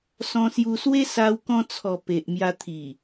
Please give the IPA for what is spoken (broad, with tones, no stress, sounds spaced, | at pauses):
s ɔ̃˧ s j u˧ s w e˦ s a˧ w k ɔ̃˧ t͡sʰ ɔ˨˩ p e˨ ʔ m j a˧ t̪ʰ i˨˩